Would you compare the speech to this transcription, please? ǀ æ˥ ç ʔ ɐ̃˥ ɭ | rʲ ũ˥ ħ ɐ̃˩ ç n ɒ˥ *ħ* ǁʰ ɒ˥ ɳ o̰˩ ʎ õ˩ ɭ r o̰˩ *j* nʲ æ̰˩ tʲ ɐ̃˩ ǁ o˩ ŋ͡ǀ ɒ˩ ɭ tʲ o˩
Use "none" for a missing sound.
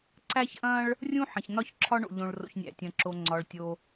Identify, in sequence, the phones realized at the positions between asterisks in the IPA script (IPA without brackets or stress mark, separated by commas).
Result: ç, ç